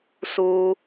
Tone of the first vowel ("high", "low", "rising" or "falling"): high